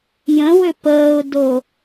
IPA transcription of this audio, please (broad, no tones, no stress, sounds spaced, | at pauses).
j ə̃ w ʏ p əː ʊ̯ d o